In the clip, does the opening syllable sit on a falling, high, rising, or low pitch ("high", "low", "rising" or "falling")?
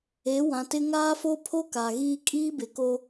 rising